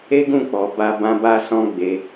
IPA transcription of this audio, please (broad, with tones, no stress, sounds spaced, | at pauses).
e˦ ɡ ũ˦˨ k͡p ɔ˨ b a˧ b ã˧ b a˦ s ɔ̃˦ ɡ͡b e˧